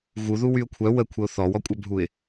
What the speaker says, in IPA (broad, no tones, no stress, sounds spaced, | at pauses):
ɣ u ð u w y ʊ̯ kʷʰ œ w ə kʷʰ ə ʊ̯ θ ɔ w ɔ kʷʼ œ bʱ u ɪ̯